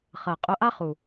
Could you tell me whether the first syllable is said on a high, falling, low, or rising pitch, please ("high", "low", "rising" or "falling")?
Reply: low